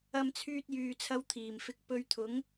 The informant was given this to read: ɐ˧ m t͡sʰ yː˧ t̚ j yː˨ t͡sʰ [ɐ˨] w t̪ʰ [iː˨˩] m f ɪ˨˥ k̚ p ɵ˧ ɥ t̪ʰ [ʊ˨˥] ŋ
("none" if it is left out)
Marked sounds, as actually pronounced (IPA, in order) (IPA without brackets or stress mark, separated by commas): ɐ˧, iː˨˩, ʊ˨˥